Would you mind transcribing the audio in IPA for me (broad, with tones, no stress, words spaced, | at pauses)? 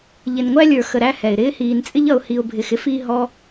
ʎɪ˨nŋʷæ˧lʲə˞˨ xə˨ɾæ˧ hɛ˨ɪ̯ɾɪː˦hiː˧nt͡sʼɪ˦ʎ ʌ˨ʊ̯hi˨ʊ̯bʱɪ˨x ɪ˦f i˧ ɦɔ˦